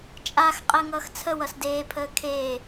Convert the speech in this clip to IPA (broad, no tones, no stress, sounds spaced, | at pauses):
t͡ʃʼ a x qʼ əː ŋ ʌː x t͡sʰ ə w ʌ s d eː pʰ əː kʰ eː